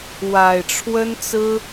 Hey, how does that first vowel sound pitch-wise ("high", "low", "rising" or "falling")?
low